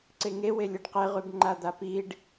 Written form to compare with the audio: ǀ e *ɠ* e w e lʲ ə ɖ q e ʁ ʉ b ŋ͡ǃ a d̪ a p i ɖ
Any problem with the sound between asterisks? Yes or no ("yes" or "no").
yes